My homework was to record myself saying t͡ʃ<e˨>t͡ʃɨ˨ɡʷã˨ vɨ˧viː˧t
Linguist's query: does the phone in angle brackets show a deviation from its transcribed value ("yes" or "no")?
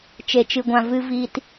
no